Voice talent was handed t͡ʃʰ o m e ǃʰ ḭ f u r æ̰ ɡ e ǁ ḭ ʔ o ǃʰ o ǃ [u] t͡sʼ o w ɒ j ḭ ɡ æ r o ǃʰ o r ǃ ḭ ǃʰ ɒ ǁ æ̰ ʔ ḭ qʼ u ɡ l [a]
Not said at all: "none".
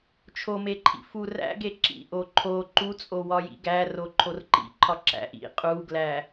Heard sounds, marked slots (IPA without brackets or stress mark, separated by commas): u, æ